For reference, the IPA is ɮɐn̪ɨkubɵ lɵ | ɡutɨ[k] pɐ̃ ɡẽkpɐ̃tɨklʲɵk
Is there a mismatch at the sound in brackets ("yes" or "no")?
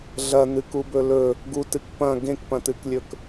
no